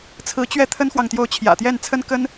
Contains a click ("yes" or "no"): no